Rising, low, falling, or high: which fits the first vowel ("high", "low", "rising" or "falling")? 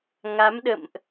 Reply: rising